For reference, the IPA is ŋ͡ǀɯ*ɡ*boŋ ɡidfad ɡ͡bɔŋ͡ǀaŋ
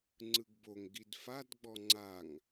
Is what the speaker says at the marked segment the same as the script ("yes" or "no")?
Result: yes